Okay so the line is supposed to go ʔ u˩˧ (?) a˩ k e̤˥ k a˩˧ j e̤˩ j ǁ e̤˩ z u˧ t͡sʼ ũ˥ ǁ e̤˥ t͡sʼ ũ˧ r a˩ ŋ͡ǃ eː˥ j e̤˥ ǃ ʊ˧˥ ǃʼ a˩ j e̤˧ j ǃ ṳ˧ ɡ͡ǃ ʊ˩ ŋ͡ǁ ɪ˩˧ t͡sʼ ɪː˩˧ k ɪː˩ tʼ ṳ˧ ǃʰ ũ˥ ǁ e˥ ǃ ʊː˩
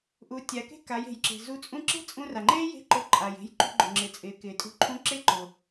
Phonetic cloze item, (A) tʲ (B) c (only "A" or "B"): A